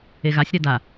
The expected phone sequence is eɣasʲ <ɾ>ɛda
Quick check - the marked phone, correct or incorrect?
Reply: correct